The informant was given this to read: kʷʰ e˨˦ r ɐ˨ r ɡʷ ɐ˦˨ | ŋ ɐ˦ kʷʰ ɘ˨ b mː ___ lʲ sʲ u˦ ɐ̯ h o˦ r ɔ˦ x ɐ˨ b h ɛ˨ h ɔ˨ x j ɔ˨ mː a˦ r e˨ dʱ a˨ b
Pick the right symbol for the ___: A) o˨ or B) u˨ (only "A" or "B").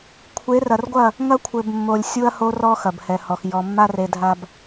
A